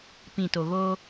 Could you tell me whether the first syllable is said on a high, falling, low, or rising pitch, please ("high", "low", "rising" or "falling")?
low